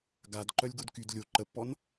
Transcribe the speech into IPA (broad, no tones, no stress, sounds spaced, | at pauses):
ɡ a d ǃ œ lʲ ɡ o d k y d lʲ o ǃ ə pː ɔ n